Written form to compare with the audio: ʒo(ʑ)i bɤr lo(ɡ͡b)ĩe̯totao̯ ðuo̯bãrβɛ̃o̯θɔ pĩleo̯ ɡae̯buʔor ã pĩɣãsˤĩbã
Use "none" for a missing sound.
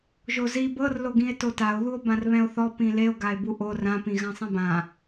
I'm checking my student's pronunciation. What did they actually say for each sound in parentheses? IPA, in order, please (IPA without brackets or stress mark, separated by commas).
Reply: z, ɡ